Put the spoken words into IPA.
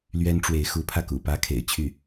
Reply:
l ɥ ɛ˥ n ʈ͡ʂ w e˧˥ ɪ̯ x u˧˥ pʰ ä˧ k ṵ˨˩ p ä˥ kʰ ḛ˨˩ ɪ̯ t͡ɕʰ y˥˩

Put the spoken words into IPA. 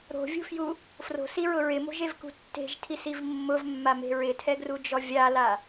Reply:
ɾ o̤ vʲ ṳ f j u | f r o̤ s i ɹ ʊ ɹ ɪ m o̤ ʒ e v k ṳ tː e̤ ʒ tʰ i s i v mː ʊ v mː a m e̤ ɹ ɪ tʰ ɛ ɡ r u d͡ʒ ɔ vʲ a l a

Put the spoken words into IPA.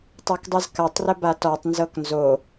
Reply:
tˤ ø k dˤ ɨ z k a tˤ r ə b a t ɔ tˤ n z ɤ k n z o

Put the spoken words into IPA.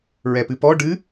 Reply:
ɹ ɛ p ɨ p ɔ ɖ ɨ

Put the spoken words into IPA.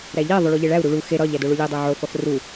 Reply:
ɾ æ ʎ e ðˤ o ɭ u ʎ e ɭ æ u̯ ɾ u ɭ u x e ɾ ɒ ʎ æ d o ɭ u lʲ e dˤ e ʕ o f ɒ f r u

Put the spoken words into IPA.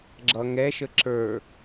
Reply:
ɡ͡ǁ ʌ ŋ ɛ ʃ ə ǁ ə˞

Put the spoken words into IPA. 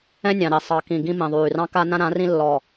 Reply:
ɛ̃˦ nʲ ɑ̃˨ ɾ i˨ sˤ ɑ˨ k ĩ˨ ɡ ĩ˦ m ĩ˨ ðˤ yː˨ r ɑ̃˦ k a˦ n ã˦ ɾ ã˨˦ r ĩ˦ lː ɔ˨

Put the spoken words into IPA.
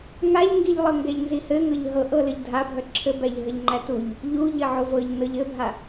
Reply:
ŋ a ʎ ŋ ɡ i ʎ lˠ ɤ ŋ ɡ ɛ ʎ n z i h ɘ ŋ ɤ ʎ ɦ ɤ ʔ ɤ l ə ʎ dʱ a bʱ œ ǁʰ ɘ b æ ʎ ɦ ə ʎ ŋ͡ǃ æ t u ʎ | ʎ u ʎ ɘ ʕ o v ɤ ʎ n ɤ ʎ ɘ bʱ a

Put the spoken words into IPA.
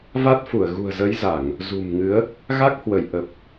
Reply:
v a˦˥ t̚ f u˧˩ ə̯ ɣ ṳ˨˩ ə̯ z ə˨˦ j z a˧˩˨ ŋ | z ṳ˨˩ m ŋ ɨ˨˦ ə̯ | ɣ a˦˥ k̚ h w ə˧˩ j ʔ ə˨˩ p̚

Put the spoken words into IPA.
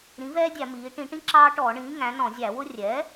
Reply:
ɾ ĩ˩˥ v ɛː˦ dʲ æ˧˩˧ m iː˩˧ ʈ ĩ˧˩˧ ʈ ĩ˦ ǁ ɑː˦ ʈ ɔː˧˩˧ ɳ ĩː˩˥ ŋ æ̃˩˥ n ɔ̃˧˩˧ zʲ æ˧˩˧ w ʊ˦ rʲ ɛ˩˥

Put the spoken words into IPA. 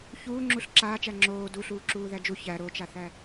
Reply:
ç uː ŋ͡ǁ u ɬ ǁ aː t͡ʃ æ ŋ͡ǁ oː d u ɬ uː ǁ uː ð æ d͡ʒ u ç æ ɾ o t͡ʃ a θ æ

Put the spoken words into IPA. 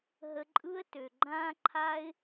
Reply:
ɦ ə˧ ǃʼ ɯ˦ ə̯ t ø˨ ɡ͡ǃ ãː˦ ǃʰ a˦ ɪ̯

